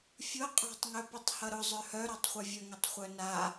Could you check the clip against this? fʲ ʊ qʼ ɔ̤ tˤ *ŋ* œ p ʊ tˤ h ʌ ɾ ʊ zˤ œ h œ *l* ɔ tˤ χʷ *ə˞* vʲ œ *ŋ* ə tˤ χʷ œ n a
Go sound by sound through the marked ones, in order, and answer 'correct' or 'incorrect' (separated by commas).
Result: correct, incorrect, incorrect, correct